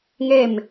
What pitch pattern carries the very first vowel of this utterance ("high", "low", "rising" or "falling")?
falling